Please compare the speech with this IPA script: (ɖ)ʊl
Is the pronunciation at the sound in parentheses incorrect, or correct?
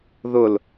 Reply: incorrect